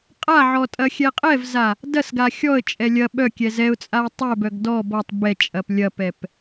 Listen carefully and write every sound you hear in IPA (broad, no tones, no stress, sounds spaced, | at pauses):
qʼ a ʕ ɔ tʼ ɐ xʲ ɛ qʼ ɛ v z a | d ɐ s ɡ a xʲ ɔ ə̯ t͡ʃʼ ɛ lʲ ɐ ɓ œ kʲ ɛ z ɛ ʊ̯ t͡sʼ a ə̯ tˤ œ b œ ɡ d ɔ b ɔ tˤ b ɛ t͡ʃʼ ɐ p lʲ ɐ p ɛ p